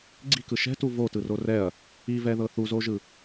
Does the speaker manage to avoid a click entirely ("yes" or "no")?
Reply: no